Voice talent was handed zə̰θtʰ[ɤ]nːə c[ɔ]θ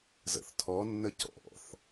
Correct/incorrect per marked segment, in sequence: incorrect: ɔ, incorrect: ɔ̰

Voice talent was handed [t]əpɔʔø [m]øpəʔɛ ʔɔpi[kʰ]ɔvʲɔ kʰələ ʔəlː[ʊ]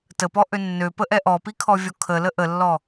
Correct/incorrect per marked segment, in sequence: correct, incorrect: nː, correct, incorrect: ɔ

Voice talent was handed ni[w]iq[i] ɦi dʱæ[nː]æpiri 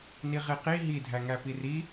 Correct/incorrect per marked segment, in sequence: incorrect: ʁ, correct, incorrect: ŋ

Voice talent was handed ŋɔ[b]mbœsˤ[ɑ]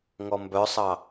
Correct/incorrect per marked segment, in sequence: incorrect: none, correct

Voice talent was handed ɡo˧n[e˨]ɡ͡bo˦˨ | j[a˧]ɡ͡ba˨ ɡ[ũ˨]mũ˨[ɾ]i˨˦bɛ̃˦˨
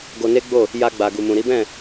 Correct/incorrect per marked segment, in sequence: incorrect: e˦, correct, incorrect: u˨, correct

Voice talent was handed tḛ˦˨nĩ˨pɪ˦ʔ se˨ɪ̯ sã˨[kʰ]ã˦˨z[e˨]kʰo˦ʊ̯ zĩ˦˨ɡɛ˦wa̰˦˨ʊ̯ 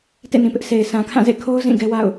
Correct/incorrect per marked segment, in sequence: correct, incorrect: ḛ˦˨

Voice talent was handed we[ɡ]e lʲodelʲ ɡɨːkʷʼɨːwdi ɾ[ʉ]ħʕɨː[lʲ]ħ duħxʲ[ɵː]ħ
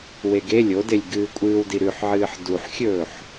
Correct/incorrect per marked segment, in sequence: correct, correct, incorrect: none, correct

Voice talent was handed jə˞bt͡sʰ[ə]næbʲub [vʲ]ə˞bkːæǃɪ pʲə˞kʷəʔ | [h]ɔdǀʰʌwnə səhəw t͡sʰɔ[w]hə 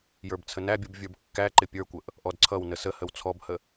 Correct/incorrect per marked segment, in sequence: correct, correct, incorrect: ʔ, incorrect: b

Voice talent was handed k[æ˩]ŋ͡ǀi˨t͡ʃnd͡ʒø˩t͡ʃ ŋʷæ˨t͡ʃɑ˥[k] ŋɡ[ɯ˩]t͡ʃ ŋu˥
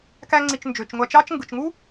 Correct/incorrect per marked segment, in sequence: incorrect: æ˦, incorrect: t͡ʃ, correct

